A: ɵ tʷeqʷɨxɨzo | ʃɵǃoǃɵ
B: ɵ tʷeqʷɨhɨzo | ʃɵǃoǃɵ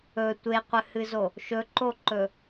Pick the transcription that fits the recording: B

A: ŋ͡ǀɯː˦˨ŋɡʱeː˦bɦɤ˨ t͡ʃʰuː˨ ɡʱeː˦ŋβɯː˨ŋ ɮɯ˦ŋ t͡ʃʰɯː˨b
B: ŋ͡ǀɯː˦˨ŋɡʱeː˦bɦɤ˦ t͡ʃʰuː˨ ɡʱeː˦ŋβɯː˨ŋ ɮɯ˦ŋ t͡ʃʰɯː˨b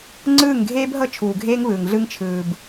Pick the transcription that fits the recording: B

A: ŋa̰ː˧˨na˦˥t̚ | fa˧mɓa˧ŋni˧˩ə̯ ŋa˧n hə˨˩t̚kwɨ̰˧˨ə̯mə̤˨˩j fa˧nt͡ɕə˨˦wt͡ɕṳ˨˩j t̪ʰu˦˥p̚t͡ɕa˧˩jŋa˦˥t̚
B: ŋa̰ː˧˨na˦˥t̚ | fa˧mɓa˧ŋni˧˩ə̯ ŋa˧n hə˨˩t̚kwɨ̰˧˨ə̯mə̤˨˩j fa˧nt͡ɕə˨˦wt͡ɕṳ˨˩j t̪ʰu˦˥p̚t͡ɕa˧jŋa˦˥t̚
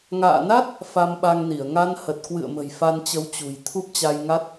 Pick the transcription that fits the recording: B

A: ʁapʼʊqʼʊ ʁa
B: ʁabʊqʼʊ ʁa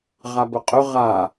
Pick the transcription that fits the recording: B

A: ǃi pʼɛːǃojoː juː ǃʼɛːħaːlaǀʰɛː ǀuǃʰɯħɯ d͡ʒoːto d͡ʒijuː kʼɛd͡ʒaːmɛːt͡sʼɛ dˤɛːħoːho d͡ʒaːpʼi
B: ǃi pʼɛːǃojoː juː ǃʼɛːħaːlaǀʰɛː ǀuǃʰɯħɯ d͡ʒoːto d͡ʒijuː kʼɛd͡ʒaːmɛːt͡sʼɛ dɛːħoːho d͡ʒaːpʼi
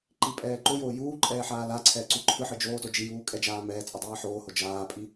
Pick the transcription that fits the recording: A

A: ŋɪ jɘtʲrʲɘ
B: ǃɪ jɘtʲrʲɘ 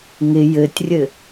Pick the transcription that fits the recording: A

